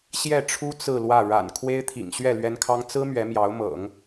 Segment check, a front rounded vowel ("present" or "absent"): absent